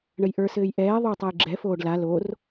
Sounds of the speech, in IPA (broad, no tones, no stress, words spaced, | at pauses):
ɳəjʔə˞sɘːj ʔɛː ðˤotˤaj ɡ͡ǁɛfoːɖ la lor